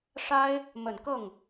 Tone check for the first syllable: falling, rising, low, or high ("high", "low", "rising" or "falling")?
high